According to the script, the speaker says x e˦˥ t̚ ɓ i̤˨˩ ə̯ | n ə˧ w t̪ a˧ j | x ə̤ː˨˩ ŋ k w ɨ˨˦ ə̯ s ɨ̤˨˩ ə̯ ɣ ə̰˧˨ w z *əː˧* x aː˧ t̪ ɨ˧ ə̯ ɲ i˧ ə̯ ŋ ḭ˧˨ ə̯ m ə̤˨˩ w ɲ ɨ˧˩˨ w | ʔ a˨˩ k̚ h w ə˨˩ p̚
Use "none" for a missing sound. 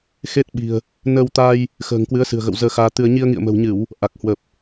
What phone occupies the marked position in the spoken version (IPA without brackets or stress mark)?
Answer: əː˧